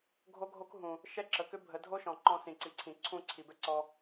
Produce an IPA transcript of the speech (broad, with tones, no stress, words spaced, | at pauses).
ɡʱo˦ɡʱo˦kɦũ˨ | ʃɛ˦ǁə˨kʏ˦ bʱə˨˦ dʱo˦ʃɔ̃˨ ǃɔ̃˧ sĩ˨ǀi˨ǀʰĩ˨ ǀʰũ˦˨ǀʰi˨bɛ˦ǀɔ˧